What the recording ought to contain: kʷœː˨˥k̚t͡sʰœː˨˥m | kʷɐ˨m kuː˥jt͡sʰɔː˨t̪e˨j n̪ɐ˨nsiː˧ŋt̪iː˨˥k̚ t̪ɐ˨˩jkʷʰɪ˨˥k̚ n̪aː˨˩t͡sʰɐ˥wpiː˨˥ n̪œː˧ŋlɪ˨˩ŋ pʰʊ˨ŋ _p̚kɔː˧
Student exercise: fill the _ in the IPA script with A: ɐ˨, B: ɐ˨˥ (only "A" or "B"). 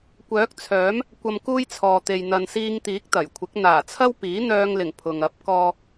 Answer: B